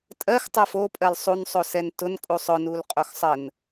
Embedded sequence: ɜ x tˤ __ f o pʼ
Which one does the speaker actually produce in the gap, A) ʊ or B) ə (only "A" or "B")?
B